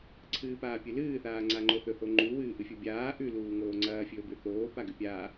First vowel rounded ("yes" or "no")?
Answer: no